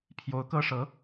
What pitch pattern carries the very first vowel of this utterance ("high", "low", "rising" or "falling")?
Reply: rising